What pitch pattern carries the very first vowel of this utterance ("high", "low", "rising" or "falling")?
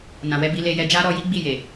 low